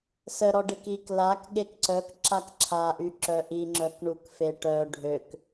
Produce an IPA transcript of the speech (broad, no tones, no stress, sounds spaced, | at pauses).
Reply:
s ə ɾ ɔ ɖ e k i k l a k ɠ e k ǀ œ k ǁ a k ǁʰ a ʔ y ǁ œ ʔ i ŋ͡ǁ œ k ɳ u k f e ʈ œ ɖʱ ø k